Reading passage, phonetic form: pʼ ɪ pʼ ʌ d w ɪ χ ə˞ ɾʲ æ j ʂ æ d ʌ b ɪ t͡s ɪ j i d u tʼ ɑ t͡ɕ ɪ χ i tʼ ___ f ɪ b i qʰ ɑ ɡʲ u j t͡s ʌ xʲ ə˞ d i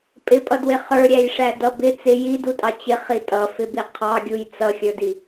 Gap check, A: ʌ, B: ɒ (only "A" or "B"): A